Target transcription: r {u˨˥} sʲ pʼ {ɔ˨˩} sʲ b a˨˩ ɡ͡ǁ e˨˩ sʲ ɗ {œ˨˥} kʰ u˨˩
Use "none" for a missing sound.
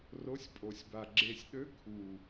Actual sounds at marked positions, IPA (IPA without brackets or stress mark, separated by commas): o˨˥, o˨˩, ø˨˥